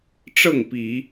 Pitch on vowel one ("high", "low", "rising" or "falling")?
falling